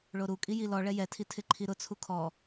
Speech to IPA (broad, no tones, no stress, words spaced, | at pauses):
ɭoɾukʼi jilɔɭɛ jɛtʰi tʰɪǃʰiɾʊt͡sʰu kʰɔ